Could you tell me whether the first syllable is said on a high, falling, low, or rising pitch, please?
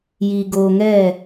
low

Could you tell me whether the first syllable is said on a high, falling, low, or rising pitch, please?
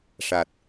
low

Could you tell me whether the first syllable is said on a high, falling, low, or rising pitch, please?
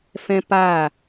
high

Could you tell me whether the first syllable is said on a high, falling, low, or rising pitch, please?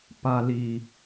low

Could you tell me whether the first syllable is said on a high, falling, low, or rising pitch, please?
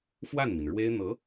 falling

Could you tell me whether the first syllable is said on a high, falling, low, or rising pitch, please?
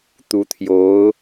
rising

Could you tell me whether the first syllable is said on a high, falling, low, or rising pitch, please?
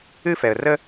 high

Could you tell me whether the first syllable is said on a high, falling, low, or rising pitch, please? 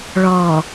low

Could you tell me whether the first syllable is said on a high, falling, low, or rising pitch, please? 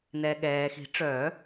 low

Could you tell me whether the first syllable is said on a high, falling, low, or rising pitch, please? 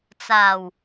low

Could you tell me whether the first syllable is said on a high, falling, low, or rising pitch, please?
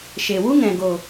low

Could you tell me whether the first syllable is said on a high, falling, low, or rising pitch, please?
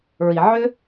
low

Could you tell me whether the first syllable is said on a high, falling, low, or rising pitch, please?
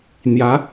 rising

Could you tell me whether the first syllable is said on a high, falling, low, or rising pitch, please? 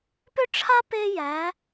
high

